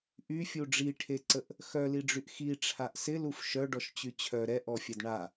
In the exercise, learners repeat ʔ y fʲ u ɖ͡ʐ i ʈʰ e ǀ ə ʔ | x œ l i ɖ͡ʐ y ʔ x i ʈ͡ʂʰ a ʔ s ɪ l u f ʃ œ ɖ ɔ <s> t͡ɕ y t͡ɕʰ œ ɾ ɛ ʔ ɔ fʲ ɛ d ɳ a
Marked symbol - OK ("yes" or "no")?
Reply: no